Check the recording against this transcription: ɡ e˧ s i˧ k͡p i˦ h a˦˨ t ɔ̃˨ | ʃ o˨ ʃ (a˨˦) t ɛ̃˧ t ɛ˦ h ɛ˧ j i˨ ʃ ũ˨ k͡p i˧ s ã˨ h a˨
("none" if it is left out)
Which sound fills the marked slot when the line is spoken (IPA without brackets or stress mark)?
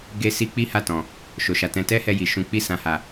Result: a˨